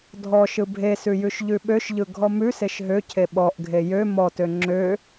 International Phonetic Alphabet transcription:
dʱ ɔ ʃ ɯ bʱ e s ʉ j ʉ ʃ ʎ ʉ ɓ ø ʃ ʎ ɯ ɡʱ ɔ m ʉ s e ʃ ɦ ø cʰ e ɓ ɔ ʔ ɡʱ e j ø m ɔ t ø ŋ͡ǁ ø

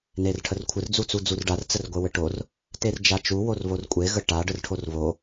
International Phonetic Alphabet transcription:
n e r ʈʰ ə r kʷʰ ɘ r d͡z u t͡s u d͡z u r ɖ a r t͡s ə r ɡʷ e w ɘ ʈ o r | t e r d͡ʒ a t͡ʃ u w o r β o r kʷʼ e ɣ ə ʈ a ɖ ə r ʈʰ o r β o

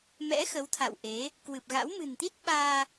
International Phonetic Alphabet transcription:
m ɛ̰˧˥ x ə˨˦ w t̪ʰ a̰˧˨ w ʔ e˨˦ | k w ɨ˨˩ p̚ ɣ a̰˧˥ w m ɨ̤˨˩ n t̪ i˦˥ t̚ ɓ aː˧

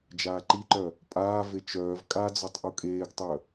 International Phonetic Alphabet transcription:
d͡ʒ aː ǃ i ǃ œ | pʼ aː v e t͡ʃ œː v kʼ a d͡z ɔ tˤ ʔ u kʼ eː ɡ tˤ œ

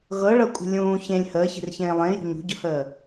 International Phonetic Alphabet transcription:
ɣ ɤ ɭ ɤ kʷʼ ə̤ lʲ ũː ç ẽ lʲ h əː ç e̤ r ç ẽː lˠ ẽ j ṳ ɲ ṳ ɟ ʊ h əː

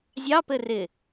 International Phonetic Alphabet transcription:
zʲ ɑ p ɘ r ɪ

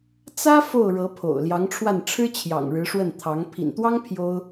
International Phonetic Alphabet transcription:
t͡s ä˥ f o˥˩ ʊ̯ ɻ ɤ˧˥ pʰ o̰˨˩ ʊ̯ l j ɑ˧˥ ŋ ʈ͡ʂʰ w a˥˩ n ʈ͡ʂʰ ɻ̩˥ t͡ɕʰ j ɑ̰˨˩ ŋ ɻ ɻ̩˧˥ ʂ w ə˥˩ n t̪ʰ ɑ˧˥ ŋ pʰ ḭ˨˩ n t̪ w ɑ˥ ŋ pʰ j o˥ ʊ̯

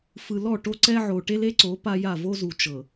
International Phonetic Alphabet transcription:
f ɯ˨ l ɔ˦˨ ʈ o˦ ǀ ɛ˦ ʕ o˨ ʈ e˦ l e˦ ǀ o˨˦ p a˦ j a˦˨ v o˦ z u˨ t͡ʃ ɤ˨

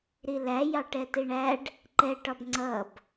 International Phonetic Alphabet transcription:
ɾ i l æ j ɑ ʈ ɛ t i ɳ æ ɖ | ǃ ɛ ʈ ɒ b ŋ͡ǀ ʌ b

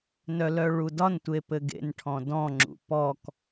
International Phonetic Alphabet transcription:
n œ l œ ɭ u d ɒ n tʷ e p ɘ ɡ ḛ n ʈʰ ɔ̃ d ɔ̃ ŋ͡ǁ ṵ p ɔ k

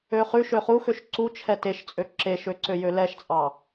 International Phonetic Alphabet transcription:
ø χ ʉ ʃ ø χ u x ø ʃ ǀ u t͡ʃʰ ɛ t e ʃ t͡sʼ ø ǁ e ʃ ø ǀ ø j ø l ɛ ʃ t͡sʼ ɑ

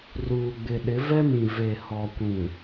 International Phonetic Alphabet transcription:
r uː˨ ɡ͡b ɪ˨ ɗ ɪ˨˦ v ɛ˦ m ĩ˨ v e˨ h ɔ˨ kʷ ĩ˨

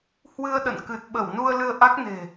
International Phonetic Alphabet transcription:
h w ɨ˧ ə̯ ɗ ə̰˧˨ n k ɨ˨˩ t̚ ɓ ə˧˩ w n u˧ ə̯ l ɨ˧ ə̯ ʔ a˦˥ k̚ n e̤˨˩

